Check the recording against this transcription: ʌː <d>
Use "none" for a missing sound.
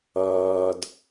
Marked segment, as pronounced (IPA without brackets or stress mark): d